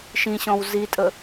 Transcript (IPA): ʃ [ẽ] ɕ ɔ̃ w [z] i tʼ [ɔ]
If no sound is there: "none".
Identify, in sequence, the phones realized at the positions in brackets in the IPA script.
ĩ, z, ə

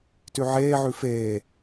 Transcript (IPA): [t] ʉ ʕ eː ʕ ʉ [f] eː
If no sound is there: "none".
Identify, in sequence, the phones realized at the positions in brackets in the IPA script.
t, f

